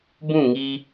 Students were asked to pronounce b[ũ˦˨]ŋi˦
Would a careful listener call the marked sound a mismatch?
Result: no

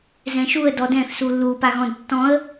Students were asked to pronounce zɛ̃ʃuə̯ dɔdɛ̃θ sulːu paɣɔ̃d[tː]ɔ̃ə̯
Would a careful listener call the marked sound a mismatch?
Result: no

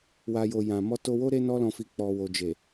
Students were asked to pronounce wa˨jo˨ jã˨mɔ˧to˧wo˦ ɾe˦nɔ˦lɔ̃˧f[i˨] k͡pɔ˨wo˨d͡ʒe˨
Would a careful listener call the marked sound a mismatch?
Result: yes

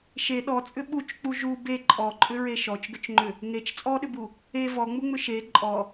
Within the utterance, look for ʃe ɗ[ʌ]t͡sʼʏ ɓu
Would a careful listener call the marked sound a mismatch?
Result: yes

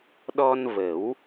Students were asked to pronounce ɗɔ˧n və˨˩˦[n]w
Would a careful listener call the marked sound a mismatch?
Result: yes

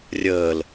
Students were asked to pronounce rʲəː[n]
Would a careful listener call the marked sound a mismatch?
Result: yes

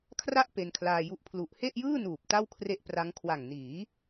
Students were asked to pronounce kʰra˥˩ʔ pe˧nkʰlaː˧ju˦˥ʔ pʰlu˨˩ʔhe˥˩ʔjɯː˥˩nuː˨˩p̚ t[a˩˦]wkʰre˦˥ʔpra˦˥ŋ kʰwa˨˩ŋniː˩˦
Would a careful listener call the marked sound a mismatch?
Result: yes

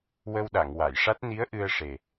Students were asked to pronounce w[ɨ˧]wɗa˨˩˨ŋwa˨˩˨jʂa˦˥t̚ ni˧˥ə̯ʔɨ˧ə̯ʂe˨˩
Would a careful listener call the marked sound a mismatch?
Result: yes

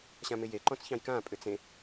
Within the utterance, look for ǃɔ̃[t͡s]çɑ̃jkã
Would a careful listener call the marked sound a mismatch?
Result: no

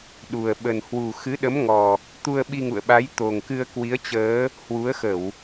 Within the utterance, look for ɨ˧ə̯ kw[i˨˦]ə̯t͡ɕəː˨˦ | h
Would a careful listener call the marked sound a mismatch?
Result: no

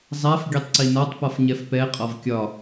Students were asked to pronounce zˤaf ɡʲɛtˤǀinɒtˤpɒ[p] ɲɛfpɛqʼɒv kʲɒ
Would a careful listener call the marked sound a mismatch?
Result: yes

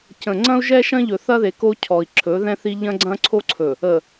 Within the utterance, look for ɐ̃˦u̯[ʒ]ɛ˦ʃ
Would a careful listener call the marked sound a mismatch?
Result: no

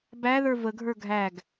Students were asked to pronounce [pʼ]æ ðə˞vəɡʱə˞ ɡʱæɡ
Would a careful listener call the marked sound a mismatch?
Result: yes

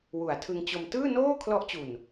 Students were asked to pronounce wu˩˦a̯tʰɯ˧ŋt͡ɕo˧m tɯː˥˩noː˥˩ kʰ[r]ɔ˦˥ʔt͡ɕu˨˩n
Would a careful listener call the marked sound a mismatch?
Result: yes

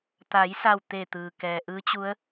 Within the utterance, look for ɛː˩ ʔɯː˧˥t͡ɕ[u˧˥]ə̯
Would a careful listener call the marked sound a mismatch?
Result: no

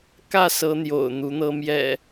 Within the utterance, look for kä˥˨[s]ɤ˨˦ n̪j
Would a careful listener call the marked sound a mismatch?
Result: no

